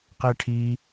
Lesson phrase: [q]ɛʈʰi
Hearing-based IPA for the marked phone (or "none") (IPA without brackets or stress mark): q